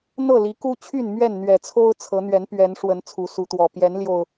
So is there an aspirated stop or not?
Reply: yes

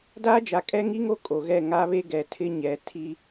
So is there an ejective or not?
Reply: yes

